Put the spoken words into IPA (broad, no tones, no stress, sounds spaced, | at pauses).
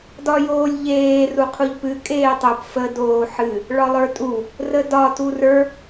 d ɒ j oː lʲ ʎ eː r u qʰ u ʎ p ɨ kʼ eː tˤ o p f ə d oː ħ ɨ | ɭ ɒ lˠ ə˞ tʼ u | r ə d ɒ t u r ə˞